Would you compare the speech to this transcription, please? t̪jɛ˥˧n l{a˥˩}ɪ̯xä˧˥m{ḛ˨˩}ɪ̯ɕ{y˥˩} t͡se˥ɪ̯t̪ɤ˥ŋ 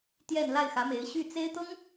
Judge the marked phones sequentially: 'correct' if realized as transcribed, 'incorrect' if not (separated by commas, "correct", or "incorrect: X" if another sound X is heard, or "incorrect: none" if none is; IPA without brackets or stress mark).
correct, incorrect: e˧˥, correct